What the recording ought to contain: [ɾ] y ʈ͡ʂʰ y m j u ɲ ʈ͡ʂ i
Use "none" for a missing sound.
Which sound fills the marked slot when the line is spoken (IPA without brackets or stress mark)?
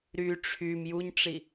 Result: ɾ